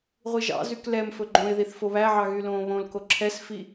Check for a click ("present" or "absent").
present